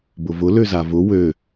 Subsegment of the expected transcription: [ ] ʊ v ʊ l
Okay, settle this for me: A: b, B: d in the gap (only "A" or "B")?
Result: A